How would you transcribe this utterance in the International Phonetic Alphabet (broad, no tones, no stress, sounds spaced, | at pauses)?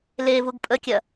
l e v u ɡ pʼ ə kʲ ɐ